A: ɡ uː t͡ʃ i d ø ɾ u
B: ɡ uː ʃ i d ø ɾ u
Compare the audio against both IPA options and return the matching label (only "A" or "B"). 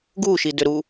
B